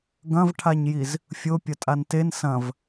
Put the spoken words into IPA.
ɡɐ̃vʈʰaɲjiz | fʲo pʲɐtʼanten sɐ̃v

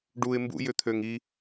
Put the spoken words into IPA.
ɖuɪ̯ mbṵjʏt̪ʰøŋ i

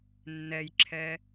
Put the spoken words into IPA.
nːɛjǁʰɛ

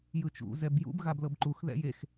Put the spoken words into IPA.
jɯt͡ʃṵ zɛbjṵb ɣablɤbǃux ðɛ̰jex

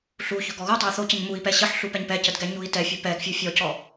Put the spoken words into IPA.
ɬuçɵ ɡɔɣutˤɵu̯ θocəɲ mui̯pɛ ɕəħɬu pɛɲpɛcəd ɡɛɲui̯tɛfʲɵ pɛɡ fʲufʲɔcɔ

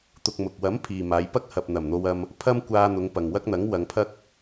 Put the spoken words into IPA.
t̪ʊ˧k̚mʊ˨k̚ wɐ˨˥m pʰiː˨maː˨˧j pɐ˥k̚hɐ˨p̚ n̪ɐ˨˩mn̪o˧wɐ˧m | pʰɐ˥mkʷaː˧n̪ʊ˨˧ŋ pɐ˨ŋwɐ˥k̚n̪ɐ˨˥ŋ wɐ˨˧ŋpʰɐ˥k̚

